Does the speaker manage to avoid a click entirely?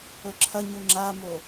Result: no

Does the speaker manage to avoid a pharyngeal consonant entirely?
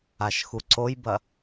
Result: yes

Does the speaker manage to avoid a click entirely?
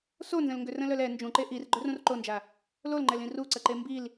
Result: no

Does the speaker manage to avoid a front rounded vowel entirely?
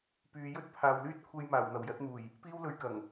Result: no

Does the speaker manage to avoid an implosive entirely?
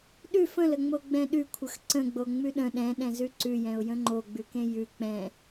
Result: no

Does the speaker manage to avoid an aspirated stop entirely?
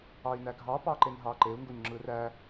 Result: yes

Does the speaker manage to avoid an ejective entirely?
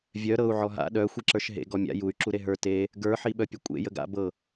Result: no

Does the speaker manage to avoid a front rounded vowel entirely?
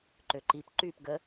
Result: no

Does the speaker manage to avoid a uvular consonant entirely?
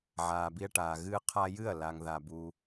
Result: no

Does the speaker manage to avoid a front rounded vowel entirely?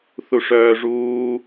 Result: no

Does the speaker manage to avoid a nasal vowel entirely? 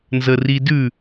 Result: yes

